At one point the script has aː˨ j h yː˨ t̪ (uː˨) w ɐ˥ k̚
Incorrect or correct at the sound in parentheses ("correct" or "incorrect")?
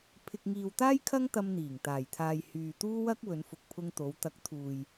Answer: incorrect